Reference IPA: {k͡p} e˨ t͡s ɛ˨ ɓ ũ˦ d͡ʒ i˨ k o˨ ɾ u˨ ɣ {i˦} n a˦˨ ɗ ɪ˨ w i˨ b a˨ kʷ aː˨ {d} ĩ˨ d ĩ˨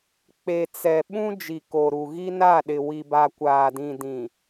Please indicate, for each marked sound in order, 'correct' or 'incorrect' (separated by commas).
correct, correct, correct